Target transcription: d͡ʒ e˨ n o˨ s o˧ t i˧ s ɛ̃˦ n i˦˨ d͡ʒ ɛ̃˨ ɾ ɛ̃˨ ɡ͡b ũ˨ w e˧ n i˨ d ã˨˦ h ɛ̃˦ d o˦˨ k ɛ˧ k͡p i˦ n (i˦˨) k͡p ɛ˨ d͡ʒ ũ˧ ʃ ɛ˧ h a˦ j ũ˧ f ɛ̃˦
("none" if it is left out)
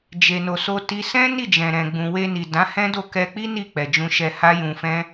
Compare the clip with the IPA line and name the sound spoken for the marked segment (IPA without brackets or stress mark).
i˦˨